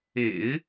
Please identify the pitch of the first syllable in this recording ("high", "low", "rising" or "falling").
low